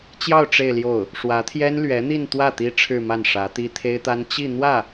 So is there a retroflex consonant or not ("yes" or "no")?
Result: yes